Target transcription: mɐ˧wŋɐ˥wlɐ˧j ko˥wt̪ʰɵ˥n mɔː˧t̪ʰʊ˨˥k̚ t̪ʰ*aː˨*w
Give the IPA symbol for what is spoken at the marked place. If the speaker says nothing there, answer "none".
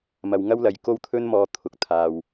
aː˧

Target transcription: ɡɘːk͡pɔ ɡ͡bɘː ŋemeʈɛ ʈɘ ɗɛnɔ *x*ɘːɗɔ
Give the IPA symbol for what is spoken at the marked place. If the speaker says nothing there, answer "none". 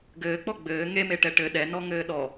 ŋ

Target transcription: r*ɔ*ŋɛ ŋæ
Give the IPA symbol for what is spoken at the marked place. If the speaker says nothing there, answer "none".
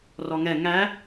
ɔ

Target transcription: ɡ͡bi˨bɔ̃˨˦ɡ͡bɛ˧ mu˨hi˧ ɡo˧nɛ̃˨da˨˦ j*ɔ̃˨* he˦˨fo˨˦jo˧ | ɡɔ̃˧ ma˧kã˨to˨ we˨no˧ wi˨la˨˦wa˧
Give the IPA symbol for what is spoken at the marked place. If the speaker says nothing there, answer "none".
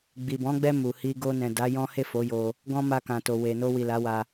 ɔ̃˦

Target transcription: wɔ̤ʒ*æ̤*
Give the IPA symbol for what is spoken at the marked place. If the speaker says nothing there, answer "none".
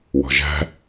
æ̤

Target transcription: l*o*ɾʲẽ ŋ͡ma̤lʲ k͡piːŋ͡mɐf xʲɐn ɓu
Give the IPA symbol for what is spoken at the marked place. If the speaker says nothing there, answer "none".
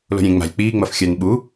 o̤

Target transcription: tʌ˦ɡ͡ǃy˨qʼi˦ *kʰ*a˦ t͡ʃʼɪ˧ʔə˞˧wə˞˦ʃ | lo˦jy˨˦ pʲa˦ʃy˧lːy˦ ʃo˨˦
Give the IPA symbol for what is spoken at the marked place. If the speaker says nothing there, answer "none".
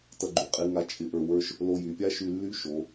ŋ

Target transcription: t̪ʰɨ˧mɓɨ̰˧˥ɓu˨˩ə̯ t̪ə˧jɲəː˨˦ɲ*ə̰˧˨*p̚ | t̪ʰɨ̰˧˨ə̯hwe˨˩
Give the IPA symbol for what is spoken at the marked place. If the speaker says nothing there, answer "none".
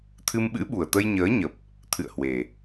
ə˨˩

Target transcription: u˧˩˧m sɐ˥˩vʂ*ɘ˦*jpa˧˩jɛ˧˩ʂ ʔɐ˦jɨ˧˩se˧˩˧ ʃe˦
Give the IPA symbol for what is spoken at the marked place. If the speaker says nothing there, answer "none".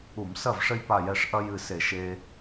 ɘ˦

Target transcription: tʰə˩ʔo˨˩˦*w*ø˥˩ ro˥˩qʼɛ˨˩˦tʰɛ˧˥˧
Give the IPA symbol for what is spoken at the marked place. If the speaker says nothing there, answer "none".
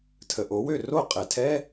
w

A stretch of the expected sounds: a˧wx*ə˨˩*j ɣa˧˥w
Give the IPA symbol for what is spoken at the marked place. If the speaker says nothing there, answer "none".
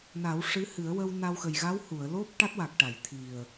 ə˨˩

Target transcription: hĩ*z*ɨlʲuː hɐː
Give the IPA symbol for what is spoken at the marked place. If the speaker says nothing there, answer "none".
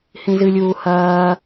z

